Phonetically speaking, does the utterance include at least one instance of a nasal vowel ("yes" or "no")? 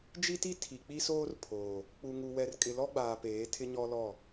no